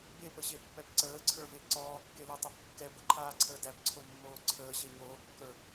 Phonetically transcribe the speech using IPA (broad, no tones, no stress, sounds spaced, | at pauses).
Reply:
b e p ə ɕ e pː ɛ b ǀ əː ǀʰ ə˞ v e ǀ ɔː kː e l ɛ tˤ æ p kː ɛ b ə ǃʰ aː ǀʰ əː d æ p ǀʰ o mː oː ǀʰ əː ɕ e ɲ oː kː ə˞